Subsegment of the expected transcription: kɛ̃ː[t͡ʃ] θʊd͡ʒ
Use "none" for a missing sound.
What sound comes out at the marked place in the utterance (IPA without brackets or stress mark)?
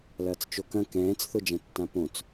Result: t͡s